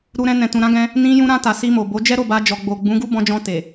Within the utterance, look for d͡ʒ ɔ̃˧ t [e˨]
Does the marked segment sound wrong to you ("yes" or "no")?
no